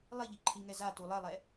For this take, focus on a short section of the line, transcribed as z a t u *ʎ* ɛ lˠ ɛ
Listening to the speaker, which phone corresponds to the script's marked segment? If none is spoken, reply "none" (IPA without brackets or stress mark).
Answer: lˠ